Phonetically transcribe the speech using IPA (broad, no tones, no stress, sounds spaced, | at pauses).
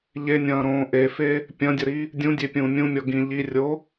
ʎ e nʲ ɐ̃ː ɾ õː ʔ e f e | pʲ ɐ̃ dʲ ə ɾ i | dʲ ũ dʲ e pʲ ũː mʲ ũ mʲ ɔ ɡ ĩ ʎ i rʲ o